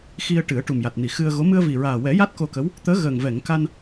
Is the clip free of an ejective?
yes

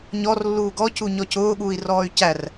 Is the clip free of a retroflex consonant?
yes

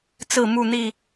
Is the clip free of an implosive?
yes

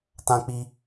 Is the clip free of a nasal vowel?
no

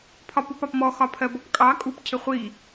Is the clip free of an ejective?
no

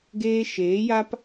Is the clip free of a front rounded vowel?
yes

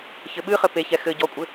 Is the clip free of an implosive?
no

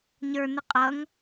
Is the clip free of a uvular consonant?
no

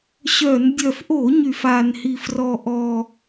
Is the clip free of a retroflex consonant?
yes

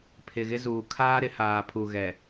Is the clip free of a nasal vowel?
yes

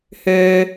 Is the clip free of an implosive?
yes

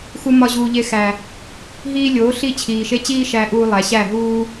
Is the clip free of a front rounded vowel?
yes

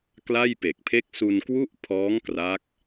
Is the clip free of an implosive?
yes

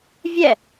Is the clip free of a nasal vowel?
yes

